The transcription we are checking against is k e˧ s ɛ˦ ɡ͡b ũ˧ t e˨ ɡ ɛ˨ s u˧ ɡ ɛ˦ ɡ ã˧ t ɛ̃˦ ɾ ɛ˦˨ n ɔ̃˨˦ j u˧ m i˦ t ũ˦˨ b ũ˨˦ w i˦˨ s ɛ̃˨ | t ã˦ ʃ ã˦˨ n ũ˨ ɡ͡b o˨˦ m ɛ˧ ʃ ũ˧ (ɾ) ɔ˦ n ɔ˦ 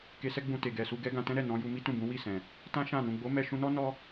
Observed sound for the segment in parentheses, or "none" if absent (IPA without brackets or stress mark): n